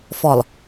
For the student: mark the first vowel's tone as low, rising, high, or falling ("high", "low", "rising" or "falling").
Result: low